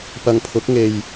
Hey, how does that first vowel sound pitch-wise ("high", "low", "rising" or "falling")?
low